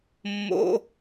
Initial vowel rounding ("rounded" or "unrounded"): rounded